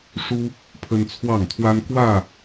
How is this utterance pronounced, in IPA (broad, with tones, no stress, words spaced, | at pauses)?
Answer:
ʂu˦ | pʰə˦nt͡sʰwɑ˥˨ŋt̪ʰwa˦n kwä˥˨